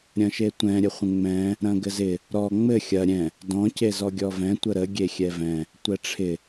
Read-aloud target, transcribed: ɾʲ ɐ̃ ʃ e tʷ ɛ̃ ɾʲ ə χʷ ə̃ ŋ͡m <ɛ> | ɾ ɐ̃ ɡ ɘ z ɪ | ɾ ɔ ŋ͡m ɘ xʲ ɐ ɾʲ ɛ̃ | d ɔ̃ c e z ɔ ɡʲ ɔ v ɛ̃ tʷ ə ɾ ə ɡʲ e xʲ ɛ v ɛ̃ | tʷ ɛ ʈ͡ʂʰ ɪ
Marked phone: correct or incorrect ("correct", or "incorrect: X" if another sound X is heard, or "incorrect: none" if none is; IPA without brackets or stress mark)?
incorrect: ɛ̃